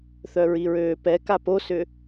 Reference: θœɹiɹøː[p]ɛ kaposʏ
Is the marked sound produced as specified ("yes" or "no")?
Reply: yes